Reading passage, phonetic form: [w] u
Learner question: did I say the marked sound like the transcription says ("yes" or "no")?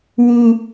yes